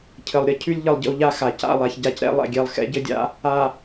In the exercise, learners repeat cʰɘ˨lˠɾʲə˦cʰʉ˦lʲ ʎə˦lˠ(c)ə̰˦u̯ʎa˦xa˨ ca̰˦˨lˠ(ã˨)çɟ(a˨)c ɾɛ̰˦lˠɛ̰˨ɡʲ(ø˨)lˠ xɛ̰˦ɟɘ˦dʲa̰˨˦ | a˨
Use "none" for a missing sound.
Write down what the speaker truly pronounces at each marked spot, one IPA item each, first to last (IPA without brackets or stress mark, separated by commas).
ɟ, a˨, a˨, ɛ˨